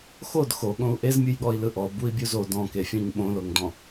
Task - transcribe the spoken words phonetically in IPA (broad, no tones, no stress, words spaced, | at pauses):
xod xoɠõu̯ ʔezmʲɯjɠɔi̯ lɯʔɔ bui̯bʲuzo dɔ̃ke fʲɔ̃ɲɓõloŋdɔ̃